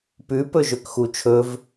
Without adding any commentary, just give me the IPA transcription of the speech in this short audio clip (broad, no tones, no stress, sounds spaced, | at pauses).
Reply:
p ʉ p ɵ ʒ ø k x u t͡ʃʰ ɵ v